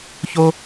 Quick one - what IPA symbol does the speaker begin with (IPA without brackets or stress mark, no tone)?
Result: ç